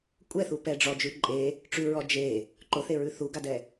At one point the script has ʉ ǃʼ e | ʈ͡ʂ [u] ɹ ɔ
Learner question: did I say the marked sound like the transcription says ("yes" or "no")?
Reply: no